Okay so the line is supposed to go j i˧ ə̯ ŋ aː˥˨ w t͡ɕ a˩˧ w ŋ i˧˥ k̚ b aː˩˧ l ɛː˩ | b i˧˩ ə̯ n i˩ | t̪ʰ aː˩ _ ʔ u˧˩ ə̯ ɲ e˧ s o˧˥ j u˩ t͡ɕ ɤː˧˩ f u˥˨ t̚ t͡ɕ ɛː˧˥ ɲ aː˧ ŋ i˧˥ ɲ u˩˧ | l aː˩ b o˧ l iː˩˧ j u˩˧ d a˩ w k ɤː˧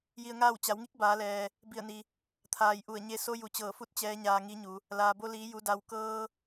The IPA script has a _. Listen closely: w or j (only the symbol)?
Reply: j